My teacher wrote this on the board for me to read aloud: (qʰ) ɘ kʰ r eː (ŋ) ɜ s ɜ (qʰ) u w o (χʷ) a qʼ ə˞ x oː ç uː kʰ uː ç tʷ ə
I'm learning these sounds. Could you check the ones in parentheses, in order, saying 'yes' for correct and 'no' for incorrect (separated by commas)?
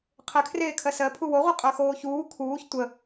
yes, no, no, no